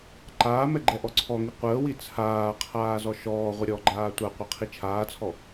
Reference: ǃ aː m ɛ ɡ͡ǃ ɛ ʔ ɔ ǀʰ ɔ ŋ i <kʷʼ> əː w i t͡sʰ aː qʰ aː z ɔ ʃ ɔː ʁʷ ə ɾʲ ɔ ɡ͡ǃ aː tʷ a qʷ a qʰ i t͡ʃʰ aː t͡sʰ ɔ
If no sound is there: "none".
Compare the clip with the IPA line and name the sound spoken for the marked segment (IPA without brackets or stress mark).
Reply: qʷ